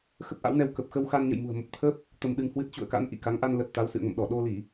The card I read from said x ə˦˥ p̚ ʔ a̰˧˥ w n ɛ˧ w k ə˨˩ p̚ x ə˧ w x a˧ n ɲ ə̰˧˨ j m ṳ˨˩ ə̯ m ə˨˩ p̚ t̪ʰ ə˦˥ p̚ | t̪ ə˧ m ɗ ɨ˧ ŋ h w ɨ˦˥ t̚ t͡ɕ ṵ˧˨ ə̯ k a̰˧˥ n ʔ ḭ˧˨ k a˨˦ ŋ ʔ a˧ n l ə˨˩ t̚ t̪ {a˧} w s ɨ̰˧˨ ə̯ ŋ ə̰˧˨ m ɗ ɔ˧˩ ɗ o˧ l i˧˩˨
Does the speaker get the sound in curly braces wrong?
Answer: yes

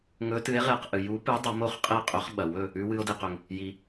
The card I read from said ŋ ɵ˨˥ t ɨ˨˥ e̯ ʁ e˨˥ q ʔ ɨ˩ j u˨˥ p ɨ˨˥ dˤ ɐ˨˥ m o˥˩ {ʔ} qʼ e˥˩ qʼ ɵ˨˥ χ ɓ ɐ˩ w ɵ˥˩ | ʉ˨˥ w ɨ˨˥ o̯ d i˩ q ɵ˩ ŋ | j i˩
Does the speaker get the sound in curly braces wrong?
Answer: yes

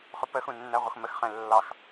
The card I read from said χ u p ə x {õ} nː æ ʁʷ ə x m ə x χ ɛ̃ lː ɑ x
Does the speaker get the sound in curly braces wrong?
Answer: yes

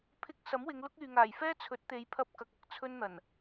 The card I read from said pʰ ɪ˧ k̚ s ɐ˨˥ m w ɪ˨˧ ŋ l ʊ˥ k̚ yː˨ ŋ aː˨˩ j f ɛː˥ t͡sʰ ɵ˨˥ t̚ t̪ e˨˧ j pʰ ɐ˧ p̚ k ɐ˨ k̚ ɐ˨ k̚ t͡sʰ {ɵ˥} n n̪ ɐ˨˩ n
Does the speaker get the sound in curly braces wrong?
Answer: no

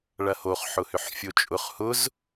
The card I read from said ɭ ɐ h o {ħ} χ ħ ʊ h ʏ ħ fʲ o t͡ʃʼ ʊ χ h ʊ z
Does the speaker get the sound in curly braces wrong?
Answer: yes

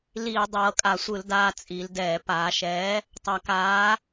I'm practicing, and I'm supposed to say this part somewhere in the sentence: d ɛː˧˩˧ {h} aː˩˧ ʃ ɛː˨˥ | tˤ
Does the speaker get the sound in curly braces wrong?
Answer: yes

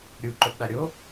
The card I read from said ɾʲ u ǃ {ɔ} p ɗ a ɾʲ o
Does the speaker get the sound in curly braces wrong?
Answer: yes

